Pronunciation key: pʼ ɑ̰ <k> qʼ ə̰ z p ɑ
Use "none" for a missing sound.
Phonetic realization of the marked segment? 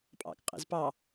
k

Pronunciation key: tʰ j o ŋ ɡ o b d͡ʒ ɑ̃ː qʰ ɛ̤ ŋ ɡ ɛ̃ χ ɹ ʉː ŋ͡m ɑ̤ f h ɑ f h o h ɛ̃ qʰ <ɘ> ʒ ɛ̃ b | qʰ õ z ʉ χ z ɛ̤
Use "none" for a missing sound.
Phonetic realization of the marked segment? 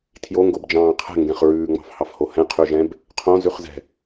ʉ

